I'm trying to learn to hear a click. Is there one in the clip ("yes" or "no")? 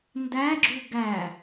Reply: yes